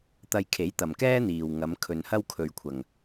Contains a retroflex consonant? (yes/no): no